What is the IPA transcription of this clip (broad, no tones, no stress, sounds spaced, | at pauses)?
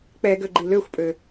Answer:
k͡p ɛ ɡ ø ɡ͡ǃ i l ø xʷ pʼ ø